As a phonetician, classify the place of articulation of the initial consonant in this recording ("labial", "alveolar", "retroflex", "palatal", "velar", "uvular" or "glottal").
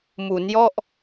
labial